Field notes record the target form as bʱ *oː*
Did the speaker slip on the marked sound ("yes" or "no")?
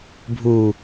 yes